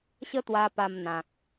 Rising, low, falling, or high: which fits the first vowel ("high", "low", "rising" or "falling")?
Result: high